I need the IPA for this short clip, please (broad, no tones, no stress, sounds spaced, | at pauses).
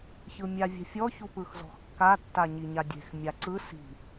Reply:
ç ɯ mʲ a vʲ ɛ̤ fʲ ɔ ç u p ɯ x z ɔ̤ x kː a tː a ɲ i ɲ a dʲ e̤ x mʲ a ǀ ɯ s i̤